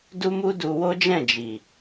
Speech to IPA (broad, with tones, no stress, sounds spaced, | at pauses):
d u˦ m u˦ d u˧ w o˦ d͡ʒ ɛ̃˦˨ d͡ʒ i˨